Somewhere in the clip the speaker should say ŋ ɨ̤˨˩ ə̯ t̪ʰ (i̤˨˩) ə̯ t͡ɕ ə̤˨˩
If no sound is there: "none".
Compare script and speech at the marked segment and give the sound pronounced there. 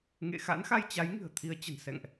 i˨˦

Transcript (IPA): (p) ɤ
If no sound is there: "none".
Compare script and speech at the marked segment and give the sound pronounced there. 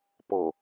p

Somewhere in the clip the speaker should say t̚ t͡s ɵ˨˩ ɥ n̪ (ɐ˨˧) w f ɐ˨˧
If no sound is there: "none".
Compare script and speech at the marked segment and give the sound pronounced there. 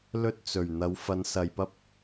ɐ˨˧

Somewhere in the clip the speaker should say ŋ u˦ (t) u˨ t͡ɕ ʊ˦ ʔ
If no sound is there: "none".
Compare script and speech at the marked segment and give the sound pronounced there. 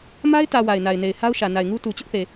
t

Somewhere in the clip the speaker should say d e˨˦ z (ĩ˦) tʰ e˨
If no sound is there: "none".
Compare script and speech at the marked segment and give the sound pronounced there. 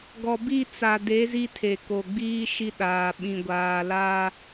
i˦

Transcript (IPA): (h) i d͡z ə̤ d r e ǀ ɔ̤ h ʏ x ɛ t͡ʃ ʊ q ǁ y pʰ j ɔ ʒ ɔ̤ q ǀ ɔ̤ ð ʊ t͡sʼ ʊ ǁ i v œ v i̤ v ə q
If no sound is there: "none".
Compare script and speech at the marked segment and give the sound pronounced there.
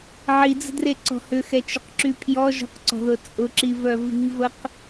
ʕ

